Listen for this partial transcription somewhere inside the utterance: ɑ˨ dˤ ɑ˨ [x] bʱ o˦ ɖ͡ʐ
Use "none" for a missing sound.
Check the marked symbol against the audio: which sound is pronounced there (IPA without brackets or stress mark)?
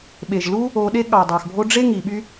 x